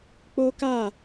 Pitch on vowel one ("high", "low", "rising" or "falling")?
high